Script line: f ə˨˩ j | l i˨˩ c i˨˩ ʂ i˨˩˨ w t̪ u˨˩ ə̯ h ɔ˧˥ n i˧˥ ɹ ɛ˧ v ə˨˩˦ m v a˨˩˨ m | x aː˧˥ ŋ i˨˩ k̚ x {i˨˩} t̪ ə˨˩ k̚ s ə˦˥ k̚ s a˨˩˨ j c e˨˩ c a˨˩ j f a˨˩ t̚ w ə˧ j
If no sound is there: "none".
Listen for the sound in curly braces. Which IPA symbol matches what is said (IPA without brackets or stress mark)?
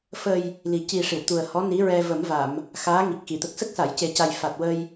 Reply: i˨˩˨